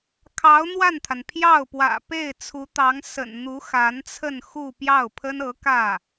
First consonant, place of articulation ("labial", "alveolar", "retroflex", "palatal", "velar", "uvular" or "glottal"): velar